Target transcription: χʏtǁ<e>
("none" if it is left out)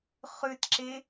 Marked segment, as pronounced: e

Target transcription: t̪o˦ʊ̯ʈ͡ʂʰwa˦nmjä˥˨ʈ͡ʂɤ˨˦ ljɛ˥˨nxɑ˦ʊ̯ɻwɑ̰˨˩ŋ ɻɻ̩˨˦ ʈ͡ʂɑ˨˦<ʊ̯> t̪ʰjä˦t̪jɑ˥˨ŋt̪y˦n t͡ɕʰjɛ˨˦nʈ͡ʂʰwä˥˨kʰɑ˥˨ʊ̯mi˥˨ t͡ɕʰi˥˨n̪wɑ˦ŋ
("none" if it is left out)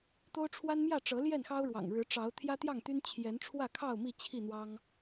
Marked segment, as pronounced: ʊ̯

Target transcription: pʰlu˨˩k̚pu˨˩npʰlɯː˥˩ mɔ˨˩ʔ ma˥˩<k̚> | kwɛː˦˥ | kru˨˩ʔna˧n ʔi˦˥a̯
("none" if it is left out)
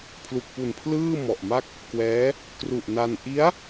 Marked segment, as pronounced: k̚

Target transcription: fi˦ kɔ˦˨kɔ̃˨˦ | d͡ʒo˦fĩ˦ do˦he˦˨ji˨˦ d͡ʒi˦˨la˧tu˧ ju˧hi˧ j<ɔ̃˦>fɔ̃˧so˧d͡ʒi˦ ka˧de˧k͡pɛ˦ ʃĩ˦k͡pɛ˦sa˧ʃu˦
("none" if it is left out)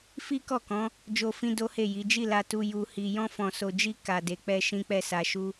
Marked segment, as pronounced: ɔ̃˦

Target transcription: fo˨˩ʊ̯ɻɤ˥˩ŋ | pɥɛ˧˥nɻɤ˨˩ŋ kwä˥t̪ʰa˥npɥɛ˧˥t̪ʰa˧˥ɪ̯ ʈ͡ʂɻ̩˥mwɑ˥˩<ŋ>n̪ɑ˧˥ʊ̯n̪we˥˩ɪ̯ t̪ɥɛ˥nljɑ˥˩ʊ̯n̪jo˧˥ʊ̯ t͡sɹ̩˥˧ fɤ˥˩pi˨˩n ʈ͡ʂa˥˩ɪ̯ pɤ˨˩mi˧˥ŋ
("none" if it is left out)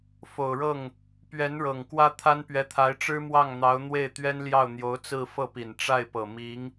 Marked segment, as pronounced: ŋ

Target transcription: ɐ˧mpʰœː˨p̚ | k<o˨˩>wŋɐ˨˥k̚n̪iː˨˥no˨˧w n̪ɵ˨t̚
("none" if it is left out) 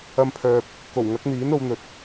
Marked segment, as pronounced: o˨˩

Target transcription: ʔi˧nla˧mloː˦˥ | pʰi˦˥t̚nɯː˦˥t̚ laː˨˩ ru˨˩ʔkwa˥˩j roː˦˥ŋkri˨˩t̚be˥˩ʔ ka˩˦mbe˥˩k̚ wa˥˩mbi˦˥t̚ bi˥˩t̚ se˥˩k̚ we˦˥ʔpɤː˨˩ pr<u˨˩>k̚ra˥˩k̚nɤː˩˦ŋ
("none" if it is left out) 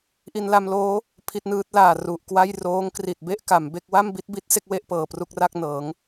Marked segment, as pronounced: u˥˩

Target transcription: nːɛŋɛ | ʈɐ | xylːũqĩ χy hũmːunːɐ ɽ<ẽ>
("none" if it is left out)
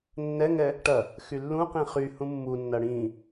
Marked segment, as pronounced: ĩ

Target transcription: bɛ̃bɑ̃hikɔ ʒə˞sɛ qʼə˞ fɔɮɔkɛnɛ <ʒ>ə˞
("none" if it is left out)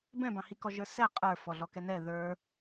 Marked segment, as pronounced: ð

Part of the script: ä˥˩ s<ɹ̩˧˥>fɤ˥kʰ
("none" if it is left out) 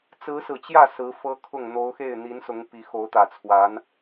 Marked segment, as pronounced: ɹ̩˧˥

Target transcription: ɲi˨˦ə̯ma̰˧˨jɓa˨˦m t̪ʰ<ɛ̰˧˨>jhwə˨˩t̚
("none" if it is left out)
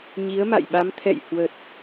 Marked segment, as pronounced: ɛ̰˧˨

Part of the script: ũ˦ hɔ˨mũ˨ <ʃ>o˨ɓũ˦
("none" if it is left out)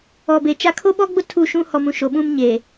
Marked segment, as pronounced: ʃ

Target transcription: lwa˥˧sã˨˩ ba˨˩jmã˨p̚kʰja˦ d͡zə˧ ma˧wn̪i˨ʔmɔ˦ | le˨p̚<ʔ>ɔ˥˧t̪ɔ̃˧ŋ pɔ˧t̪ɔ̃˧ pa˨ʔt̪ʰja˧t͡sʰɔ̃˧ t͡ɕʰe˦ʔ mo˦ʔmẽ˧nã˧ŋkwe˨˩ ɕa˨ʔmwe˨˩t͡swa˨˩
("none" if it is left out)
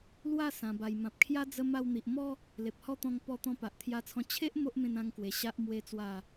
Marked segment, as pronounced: h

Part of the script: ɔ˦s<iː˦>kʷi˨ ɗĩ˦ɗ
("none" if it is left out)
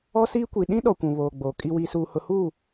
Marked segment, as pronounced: iː˦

